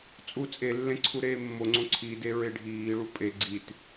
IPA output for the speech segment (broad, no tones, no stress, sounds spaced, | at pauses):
t͡sʼ u t͡sʼ e lː ẽ ǀʰ u ɾ eː mː o ŋ͡ǀ õ ǀʰ i d e ɹ e ɖʱ iː ɭ u pʼ e ɡ͡ǀ i t